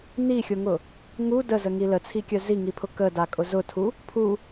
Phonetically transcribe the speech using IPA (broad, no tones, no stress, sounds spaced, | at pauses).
n i xʲ ʊ ŋ ʊ | ŋ u d ə z ə ŋ i l ə t͡sʰ i kʲ œ z i ŋ i pʰ ʊ k ə d a kʼ ʊ z ʊ tʰ u | pʰ u